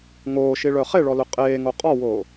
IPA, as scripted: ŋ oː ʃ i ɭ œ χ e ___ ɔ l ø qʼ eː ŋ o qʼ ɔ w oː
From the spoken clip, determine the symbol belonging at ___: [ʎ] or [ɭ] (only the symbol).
ɭ